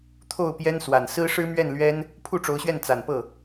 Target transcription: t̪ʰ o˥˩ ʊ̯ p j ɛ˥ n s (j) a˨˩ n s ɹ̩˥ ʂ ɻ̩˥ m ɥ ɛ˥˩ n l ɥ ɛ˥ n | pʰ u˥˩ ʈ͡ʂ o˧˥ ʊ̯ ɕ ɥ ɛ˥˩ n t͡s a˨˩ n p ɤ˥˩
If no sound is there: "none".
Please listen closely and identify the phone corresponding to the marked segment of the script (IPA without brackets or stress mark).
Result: w